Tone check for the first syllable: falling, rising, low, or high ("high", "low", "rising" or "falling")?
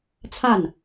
falling